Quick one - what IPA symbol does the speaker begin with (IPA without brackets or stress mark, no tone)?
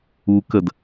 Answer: u